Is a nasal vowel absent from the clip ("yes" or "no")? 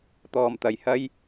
yes